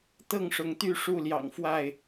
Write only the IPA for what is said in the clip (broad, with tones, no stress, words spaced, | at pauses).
t̪ɤ˥˨ŋʂʊ˨˦ŋt̪y˥˨ ʂu˥˨ljɑ̰˨˩ŋfwa˥˨ɪ̯